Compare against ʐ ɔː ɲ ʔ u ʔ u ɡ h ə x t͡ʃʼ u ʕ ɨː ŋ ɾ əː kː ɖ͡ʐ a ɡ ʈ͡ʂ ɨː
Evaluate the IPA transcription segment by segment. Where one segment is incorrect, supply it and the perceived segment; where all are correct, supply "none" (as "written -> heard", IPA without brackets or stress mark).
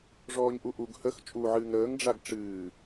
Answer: kː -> ŋ